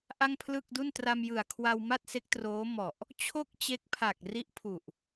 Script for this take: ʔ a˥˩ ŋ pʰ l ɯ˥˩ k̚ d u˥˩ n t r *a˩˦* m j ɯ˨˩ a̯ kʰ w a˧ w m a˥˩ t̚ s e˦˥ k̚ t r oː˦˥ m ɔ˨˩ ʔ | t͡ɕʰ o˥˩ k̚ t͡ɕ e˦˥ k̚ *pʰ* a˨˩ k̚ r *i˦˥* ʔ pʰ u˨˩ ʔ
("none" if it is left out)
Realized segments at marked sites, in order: a˧, pʰ, i˦˥

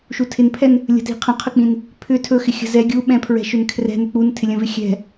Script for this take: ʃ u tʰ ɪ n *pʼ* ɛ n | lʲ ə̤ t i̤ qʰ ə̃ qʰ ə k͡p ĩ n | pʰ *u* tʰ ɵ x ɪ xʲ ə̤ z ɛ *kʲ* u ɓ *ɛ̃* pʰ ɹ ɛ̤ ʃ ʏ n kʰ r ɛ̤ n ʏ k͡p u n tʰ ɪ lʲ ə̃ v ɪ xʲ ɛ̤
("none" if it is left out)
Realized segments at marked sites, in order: pʰ, ʏ, ɡʲ, ɛ̃

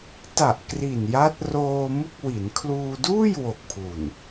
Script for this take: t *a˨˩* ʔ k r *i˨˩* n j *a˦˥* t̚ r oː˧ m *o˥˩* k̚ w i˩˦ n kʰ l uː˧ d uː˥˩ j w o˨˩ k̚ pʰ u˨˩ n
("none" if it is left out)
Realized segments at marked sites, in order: a˨˩, i˨˩, a˦˥, u˥˩

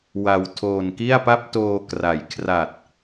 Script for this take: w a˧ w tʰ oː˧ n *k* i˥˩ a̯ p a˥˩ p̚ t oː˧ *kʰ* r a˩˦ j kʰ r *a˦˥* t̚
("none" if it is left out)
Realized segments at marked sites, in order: k, k, a˨˩

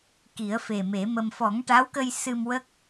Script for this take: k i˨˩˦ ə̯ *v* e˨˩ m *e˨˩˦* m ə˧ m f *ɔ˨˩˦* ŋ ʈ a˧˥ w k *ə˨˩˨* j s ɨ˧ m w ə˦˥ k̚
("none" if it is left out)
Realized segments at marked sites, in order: f, e˨˩˦, ɔ˨˩˦, ə˧

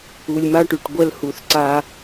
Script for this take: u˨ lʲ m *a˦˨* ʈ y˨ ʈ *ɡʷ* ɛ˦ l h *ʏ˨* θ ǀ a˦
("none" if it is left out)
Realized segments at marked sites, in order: a˦, ɡʷ, u˨

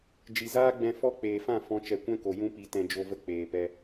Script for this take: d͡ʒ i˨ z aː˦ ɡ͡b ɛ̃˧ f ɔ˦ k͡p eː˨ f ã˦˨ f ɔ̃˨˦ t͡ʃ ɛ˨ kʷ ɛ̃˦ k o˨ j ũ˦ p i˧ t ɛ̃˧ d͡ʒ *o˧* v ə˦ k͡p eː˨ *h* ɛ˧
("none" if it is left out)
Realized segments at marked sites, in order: o˧, p

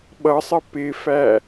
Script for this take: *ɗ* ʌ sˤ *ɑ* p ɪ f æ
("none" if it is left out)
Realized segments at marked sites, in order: ɓ, ə

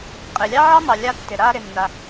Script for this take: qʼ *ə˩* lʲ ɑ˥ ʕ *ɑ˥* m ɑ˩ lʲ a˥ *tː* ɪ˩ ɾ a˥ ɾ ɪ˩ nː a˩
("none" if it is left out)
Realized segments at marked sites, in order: ɪ˩, ɑ˥, tː

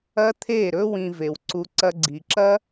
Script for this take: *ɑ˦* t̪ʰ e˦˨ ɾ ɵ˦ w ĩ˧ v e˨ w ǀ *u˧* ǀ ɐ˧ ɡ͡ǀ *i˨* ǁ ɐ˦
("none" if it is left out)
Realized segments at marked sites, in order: ɐ˦, u˧, i˨

